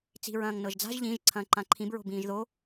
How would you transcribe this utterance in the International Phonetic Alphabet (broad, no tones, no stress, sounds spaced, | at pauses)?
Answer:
t͡s i̤ ɹ ɐ̃ː ŋ n ɤ ʒ d͡z a̤ ʒ ʎ ĩ ʒ ǀʰ ɐ̃ː ǃ ã ǃʰ ĩ b ɹ o̤ b ĩː ʒ ð o